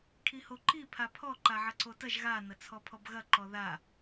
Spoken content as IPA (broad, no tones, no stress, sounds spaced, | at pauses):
kʰ i h o ǃ i pʰ a pʰ ɔ ǃ a ʕ ɐ ǀ o t ɐ ʒ ɣ a n ɐ t͡sʰ ɔ pʰ ɔ b ɣ ɐ ǃ ɔ ð a